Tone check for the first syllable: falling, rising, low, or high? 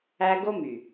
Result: high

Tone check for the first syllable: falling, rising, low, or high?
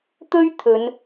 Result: high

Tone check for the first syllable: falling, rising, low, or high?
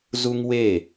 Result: high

